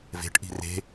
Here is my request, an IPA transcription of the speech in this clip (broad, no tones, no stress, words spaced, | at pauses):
ve̤ʈ ʔi̤re̤